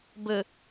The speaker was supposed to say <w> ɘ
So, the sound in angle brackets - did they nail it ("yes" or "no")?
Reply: no